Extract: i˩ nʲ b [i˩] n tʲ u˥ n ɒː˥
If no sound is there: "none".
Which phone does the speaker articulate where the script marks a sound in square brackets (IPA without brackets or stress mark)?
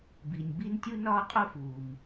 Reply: i˥